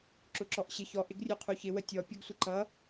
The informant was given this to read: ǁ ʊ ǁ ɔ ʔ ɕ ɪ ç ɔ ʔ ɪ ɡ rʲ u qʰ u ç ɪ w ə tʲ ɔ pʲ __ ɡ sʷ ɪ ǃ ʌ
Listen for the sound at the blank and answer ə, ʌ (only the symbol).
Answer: ʌ